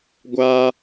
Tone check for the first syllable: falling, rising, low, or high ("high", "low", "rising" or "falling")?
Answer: high